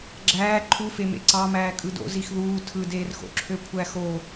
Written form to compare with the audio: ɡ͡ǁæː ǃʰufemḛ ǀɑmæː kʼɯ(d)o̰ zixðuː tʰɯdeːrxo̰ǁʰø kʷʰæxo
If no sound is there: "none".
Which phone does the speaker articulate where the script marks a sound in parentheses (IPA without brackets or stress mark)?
d